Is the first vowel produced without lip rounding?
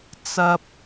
yes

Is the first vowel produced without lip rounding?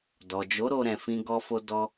no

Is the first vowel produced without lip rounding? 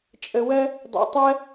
yes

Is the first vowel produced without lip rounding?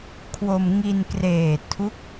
no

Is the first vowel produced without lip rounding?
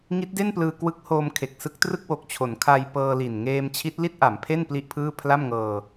yes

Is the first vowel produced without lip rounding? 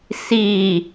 yes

